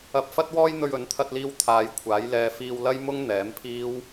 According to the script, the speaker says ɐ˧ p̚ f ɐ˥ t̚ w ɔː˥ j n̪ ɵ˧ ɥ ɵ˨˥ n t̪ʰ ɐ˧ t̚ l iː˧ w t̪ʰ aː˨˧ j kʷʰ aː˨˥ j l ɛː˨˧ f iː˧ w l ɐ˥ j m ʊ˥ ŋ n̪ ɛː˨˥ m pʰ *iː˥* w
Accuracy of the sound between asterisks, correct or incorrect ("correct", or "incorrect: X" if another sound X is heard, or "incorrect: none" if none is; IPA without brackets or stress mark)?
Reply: correct